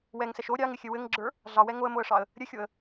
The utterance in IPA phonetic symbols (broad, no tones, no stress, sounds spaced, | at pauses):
w ɛ ŋ s ɛ ʃ o ɾʲ ɑ ŋ ɪ xʲ ɘ w ɘ ŋ ɡ͡ǁ ə˞ | ɮ ɑ w ɛ ŋ o ə̯ m o ə̯ ʂ ɑ ə̯ | ɾʲ ɘ xʲ o ə̯